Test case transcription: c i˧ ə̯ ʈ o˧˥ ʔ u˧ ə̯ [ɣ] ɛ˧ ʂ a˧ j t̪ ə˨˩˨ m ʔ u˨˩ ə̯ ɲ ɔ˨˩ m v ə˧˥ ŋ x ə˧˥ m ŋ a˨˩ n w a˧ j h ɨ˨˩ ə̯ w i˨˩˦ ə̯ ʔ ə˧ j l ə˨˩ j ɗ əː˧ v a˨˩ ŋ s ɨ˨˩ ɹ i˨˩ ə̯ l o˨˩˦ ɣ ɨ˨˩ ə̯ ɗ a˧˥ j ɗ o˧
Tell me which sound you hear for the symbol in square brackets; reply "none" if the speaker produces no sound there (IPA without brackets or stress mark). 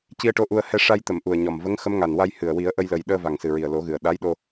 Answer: h